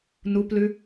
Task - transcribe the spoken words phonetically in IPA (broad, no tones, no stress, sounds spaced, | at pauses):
n u p l ʉ